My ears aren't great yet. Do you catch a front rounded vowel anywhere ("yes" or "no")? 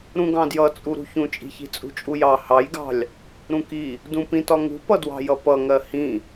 no